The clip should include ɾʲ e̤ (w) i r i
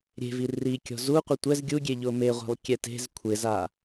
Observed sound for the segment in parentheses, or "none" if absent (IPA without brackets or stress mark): v